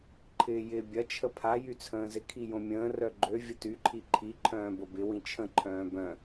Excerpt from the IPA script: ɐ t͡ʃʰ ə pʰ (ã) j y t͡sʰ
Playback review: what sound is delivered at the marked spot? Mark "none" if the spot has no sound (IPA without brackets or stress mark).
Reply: a